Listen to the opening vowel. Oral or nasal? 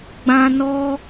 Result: nasal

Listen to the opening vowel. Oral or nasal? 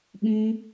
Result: nasal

